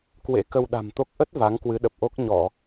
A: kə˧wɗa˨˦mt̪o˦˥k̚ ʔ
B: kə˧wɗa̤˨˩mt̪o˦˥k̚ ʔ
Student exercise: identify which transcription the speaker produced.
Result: B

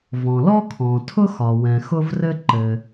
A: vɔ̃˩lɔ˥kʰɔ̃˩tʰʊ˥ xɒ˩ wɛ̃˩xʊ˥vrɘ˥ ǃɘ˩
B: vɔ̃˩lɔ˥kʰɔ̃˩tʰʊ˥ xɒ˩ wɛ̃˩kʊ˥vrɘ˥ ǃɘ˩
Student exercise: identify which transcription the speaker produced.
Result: A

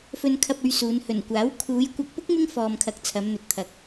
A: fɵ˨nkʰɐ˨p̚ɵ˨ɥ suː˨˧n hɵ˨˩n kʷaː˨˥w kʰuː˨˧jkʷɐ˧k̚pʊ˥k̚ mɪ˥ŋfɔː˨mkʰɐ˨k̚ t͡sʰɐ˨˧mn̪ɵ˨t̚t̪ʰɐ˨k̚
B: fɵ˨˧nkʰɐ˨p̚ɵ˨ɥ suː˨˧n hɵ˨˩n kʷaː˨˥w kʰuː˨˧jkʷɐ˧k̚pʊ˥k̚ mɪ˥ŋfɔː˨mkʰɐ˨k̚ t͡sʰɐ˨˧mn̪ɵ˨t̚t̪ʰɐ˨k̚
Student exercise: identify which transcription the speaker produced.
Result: A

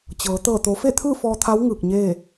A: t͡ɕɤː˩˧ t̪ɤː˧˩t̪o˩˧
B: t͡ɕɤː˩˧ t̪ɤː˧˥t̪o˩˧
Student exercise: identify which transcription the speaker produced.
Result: A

